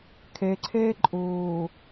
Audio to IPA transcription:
kʰ ɛ ǀʰ ɛː ǃʼ oː

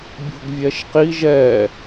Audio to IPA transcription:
bʲ o̤ ɡ vʲ ɛ ʃ q i ʒ ɛ

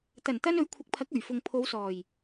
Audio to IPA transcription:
t̪ ɐ˨˩ n t̪ ɐ˧ n ɵ˨˥ ɥ kʷʰ ɪ˨˥ k̚ pʰ ɐ˨˥ k̚ ɵ˨˩ ɥ f ʊ˨ ŋ pʰ o˨˧ w s ɔː˨˩ j

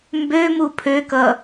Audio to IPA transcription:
m b ø m u pʰ ø k ʌ

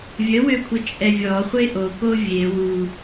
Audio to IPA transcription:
vʲ ə w ø kʷʰ ə t͡ʃʼ ɛ vʲ ɔ χʷ e ʔ o k o vʲ e w u

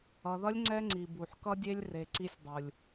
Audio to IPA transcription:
ʌ˨ ð ʌ˦ lʲ ŋ͡ǀ ɛ˦ ŋ͡ǀ i˨ b u˨ ħ k ʌ˦ dʲ e˦ lʲ r e˨ ǀ i˧ sʲ dˤ u˨ lʲ

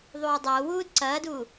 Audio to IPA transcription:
ðˤ uː dˤ oː w uː d ǀ ɐː d uː

